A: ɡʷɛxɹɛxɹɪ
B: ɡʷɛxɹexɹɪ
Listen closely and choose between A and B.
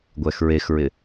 B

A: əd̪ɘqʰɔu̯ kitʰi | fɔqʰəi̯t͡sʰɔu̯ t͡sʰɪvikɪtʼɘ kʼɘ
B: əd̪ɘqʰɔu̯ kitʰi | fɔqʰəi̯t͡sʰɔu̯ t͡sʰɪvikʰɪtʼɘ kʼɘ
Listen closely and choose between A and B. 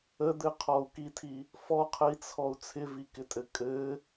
A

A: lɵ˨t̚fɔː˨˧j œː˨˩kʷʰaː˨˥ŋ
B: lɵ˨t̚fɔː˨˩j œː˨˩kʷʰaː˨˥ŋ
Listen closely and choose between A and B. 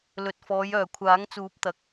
A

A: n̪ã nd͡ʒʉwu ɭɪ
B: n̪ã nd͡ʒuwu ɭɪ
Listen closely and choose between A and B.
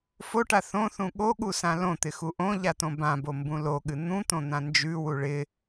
A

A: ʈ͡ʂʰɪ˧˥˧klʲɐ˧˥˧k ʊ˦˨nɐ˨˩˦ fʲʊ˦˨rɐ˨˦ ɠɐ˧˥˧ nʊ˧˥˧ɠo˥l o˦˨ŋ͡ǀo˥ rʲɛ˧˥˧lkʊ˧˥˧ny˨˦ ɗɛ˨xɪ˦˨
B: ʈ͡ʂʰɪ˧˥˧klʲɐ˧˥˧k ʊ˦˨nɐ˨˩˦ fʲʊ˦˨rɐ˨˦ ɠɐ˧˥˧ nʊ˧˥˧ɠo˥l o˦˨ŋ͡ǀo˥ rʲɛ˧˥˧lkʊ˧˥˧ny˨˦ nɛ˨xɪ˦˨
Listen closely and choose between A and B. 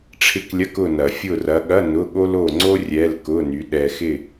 A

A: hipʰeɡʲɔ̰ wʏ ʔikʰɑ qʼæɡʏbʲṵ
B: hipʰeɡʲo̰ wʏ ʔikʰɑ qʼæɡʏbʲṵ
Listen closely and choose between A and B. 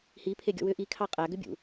A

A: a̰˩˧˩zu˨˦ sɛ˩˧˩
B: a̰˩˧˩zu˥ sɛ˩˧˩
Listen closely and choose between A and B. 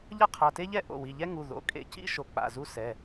B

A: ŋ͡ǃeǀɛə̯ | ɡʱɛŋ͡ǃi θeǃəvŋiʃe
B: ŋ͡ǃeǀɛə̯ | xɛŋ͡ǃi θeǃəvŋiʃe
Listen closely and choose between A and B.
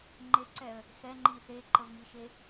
B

